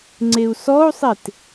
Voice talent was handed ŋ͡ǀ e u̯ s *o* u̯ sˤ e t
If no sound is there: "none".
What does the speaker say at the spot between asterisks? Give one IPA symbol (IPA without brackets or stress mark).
ɔ